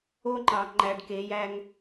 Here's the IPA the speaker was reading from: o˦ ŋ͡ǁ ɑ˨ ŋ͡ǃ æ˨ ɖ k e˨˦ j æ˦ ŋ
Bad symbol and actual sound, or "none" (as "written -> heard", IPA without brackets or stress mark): ŋ͡ǁ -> ŋ͡ǃ